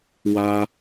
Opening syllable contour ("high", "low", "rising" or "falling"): high